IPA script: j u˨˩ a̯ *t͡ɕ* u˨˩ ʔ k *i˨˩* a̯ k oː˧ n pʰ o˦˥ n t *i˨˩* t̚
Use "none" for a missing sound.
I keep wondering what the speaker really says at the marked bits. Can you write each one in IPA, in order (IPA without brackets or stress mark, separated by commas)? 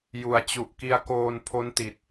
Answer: t͡ɕ, i˧, i˨˩